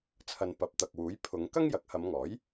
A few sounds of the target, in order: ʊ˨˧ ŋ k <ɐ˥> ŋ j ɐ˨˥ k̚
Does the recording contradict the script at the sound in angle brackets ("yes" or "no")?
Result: no